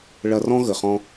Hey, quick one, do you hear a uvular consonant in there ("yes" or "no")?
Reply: yes